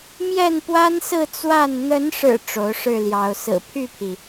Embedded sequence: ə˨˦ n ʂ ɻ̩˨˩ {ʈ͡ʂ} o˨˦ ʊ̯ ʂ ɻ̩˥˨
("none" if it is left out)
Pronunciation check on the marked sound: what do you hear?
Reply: ʈ͡ʂ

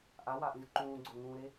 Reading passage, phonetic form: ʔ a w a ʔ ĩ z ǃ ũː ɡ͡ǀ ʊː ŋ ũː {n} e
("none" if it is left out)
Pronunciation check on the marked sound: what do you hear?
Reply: ɾ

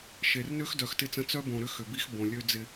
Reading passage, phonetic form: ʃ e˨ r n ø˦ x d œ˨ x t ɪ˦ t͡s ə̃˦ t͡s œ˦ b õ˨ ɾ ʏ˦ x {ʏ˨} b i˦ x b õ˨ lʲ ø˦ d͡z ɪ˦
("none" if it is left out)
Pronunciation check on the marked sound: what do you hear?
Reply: ʏ˨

